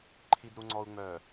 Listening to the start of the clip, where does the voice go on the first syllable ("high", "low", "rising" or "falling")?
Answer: low